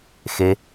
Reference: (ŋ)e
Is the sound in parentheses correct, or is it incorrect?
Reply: incorrect: x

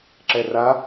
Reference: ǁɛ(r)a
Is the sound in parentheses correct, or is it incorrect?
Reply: correct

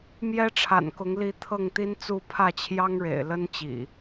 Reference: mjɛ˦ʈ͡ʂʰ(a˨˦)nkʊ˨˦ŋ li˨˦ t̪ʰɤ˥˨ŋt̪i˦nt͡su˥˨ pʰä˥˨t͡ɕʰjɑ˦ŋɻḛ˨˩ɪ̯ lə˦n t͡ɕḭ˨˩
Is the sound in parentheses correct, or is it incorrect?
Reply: incorrect: a̰˨˩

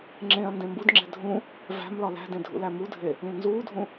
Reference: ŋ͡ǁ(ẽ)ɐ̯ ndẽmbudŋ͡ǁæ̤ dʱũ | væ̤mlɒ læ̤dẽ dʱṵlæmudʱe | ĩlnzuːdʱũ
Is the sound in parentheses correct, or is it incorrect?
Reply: correct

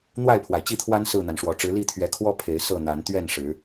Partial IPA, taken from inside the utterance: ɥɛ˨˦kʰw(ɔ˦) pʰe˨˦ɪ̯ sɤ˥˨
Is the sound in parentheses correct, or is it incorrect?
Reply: correct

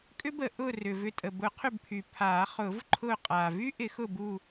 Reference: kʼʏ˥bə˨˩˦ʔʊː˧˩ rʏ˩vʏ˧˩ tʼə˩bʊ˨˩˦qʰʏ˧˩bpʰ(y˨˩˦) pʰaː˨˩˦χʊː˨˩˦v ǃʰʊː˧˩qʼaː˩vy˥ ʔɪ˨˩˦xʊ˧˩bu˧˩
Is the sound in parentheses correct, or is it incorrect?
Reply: incorrect: y˩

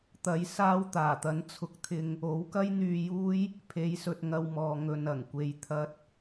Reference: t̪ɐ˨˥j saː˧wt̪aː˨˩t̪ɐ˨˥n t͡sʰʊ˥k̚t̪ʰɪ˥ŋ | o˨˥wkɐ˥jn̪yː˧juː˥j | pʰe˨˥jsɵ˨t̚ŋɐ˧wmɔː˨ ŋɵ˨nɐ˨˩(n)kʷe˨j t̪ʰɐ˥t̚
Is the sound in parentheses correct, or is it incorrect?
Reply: incorrect: ŋ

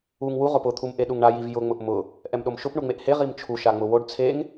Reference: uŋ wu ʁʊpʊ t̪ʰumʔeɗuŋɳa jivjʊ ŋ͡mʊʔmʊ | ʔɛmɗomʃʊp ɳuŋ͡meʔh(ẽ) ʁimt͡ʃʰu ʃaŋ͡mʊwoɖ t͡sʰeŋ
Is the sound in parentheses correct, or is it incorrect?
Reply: incorrect: e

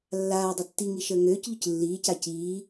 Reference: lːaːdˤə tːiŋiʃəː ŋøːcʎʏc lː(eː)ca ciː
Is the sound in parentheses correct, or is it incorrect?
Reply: incorrect: iː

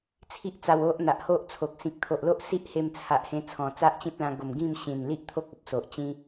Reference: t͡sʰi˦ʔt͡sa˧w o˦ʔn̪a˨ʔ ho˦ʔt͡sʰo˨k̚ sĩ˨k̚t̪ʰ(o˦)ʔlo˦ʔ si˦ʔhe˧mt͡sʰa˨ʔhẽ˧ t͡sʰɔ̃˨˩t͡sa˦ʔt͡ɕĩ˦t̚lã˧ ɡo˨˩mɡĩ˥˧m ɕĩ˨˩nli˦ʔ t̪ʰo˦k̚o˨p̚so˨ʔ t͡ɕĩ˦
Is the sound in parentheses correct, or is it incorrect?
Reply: incorrect: o˨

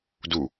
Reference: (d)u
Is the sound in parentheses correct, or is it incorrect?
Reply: correct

